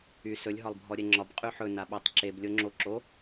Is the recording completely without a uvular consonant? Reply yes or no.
no